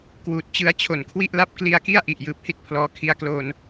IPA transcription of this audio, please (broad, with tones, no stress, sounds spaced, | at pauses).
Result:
k w uː˨˩ t̚ t͡ɕ ɯ˧ a̯ t͡ɕʰ o˨˩ n kʰ w i˥˩ ʔ l a˥˩ p̚ k l i˧ a̯ k i˥˩ a̯ ʔ i˨˩ ʔ j ɯː˨˩ p̚ h i˥˩ t̚ pʰ l ɔː˧ kʰ i˦˥ a̯ k l oː˧ n